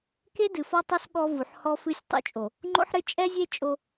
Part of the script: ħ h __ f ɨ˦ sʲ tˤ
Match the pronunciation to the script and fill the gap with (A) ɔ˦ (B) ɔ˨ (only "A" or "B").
A